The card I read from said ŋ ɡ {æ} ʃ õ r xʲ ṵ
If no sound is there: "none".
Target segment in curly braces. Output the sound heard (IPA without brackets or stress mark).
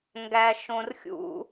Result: æ